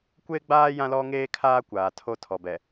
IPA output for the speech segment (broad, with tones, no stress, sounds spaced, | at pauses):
kʷ eː˦ ɡ͡b aː˦ j ã˦ l ɔ˦ ŋ eː˦ kʰ aː˦ kʷ aː˨ tʰ o˦ tʰ ɔ˨ b ɛ˨